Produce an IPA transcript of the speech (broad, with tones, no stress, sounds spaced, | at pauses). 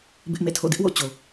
b ɪ˦ ʔ m ḛ˦˨ tʰ o̰˦˨ d ɪ˦ ʔ w o̰˦˨ t͡ɕ o˨